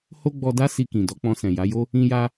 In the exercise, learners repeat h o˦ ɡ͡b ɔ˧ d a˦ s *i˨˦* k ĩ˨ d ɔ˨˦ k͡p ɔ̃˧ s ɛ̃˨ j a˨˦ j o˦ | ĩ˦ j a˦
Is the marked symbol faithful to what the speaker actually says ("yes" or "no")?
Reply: no